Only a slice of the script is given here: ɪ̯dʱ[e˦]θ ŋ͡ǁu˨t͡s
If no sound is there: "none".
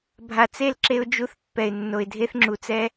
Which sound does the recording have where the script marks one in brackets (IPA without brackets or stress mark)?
e˦